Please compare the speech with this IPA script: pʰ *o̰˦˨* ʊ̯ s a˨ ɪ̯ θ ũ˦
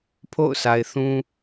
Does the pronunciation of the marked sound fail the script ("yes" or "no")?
no